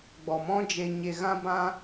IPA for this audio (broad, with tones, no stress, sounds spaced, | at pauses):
ɡ͡b ɔ˨ m ɔ̃˦ d͡ʒ e˧ ɲ e˧ ɣ ã˦ b ã˦